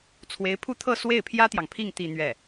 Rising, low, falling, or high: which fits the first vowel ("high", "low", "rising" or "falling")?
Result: rising